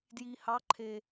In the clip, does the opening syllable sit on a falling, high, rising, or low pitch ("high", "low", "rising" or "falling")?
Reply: low